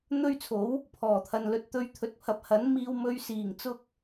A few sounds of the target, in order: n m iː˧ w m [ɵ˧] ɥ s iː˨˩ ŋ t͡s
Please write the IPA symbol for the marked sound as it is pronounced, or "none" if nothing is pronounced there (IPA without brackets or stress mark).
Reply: ɵ˧